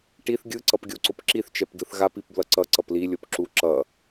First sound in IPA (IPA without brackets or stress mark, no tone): ʈ